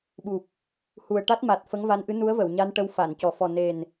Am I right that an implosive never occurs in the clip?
no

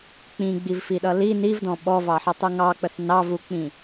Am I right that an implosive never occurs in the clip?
no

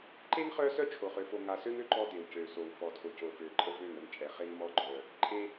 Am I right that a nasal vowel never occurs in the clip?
yes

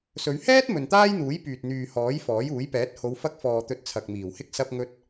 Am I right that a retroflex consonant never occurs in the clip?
yes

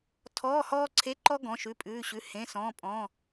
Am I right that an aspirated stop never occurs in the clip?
no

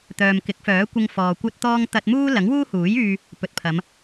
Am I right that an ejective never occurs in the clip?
yes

